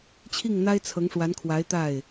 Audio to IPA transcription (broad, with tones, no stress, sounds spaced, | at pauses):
t͡ɕʰ i˥˩ ŋ n̪ a˥ ɪ̯ t͡sʰ ɤ˧˥ ŋ ʂ w a˧˥ n kʰ w a˧˥ ɪ̯ t̪ a˥˩ ɪ̯